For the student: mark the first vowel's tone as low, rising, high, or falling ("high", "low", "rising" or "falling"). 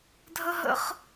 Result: high